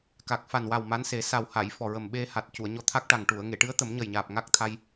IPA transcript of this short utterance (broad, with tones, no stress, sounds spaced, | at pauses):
k a˨˩ k̚ f a˨˩ n w a˨˩ w m a˧˥ n s e˨˩˦ s a˨˩ w h a˨˩˨ j f ɔ˨˩ ɹ ə˨˩ m ɓ e˧ h a˨˩ t̚ c u˨˩˨ ə̯ ɲ ɔ˧ t̪ʰ a˦˥ k̚ ʈ a˨˩ ŋ ʈ u˨˩˨ ə̯ ŋ e˨˩˨ ʈ ɨ˧˥ ə̯ t̪ ə˨˩˦ m ɲ ə˨˩ j ɲ aː˨˩ p̚ ŋ a˦˥ k̚ t̪ʰ a˧ j